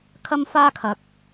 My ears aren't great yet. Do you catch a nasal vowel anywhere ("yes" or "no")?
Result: no